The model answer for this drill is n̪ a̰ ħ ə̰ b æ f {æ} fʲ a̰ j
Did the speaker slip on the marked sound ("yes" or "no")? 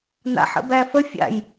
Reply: yes